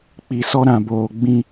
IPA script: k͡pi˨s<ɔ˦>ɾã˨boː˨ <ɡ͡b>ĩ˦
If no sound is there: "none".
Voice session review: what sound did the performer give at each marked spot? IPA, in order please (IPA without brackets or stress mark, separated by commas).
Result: ɔ˦, ɡ͡b